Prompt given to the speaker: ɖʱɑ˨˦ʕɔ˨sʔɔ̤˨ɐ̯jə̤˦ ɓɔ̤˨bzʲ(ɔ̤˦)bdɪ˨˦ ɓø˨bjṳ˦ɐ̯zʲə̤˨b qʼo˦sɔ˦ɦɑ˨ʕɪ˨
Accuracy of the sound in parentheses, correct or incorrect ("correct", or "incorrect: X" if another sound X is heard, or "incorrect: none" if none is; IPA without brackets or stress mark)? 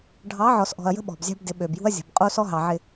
incorrect: ɑ̤˦